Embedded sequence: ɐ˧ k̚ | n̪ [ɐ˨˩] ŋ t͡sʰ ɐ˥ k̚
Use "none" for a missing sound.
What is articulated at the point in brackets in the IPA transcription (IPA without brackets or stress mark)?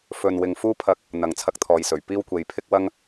ɐ˨